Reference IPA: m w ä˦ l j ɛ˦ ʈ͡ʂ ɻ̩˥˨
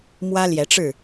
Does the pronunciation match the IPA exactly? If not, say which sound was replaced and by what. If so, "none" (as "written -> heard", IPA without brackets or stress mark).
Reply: ɛ˦ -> ɛ˨˦